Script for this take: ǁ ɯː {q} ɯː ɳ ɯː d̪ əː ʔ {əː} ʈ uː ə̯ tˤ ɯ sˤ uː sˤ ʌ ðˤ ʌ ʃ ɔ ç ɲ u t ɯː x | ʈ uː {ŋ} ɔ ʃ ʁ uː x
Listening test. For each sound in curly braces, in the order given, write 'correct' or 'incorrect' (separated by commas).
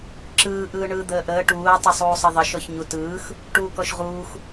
incorrect, correct, incorrect